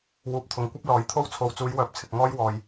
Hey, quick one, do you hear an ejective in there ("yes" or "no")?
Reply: no